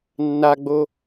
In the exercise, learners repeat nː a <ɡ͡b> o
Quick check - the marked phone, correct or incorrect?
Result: correct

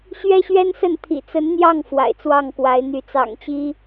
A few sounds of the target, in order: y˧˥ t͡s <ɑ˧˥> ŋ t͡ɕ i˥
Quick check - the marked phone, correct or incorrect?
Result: incorrect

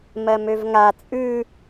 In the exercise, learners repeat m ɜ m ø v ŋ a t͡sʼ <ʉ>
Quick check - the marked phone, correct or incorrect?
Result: correct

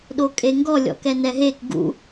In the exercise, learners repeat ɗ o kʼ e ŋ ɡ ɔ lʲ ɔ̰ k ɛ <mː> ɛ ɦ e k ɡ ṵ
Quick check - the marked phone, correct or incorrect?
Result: incorrect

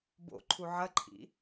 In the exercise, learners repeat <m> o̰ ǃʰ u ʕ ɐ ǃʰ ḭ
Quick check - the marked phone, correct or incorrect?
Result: incorrect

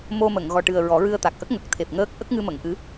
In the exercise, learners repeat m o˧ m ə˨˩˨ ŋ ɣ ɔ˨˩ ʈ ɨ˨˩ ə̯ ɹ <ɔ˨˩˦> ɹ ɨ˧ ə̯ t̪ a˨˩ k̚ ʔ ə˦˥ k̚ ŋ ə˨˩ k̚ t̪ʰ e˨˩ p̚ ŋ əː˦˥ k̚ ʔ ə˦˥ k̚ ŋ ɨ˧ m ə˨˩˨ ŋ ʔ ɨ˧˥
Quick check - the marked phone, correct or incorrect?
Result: correct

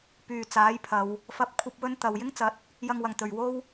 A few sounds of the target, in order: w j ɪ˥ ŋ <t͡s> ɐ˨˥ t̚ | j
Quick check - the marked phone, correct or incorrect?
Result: correct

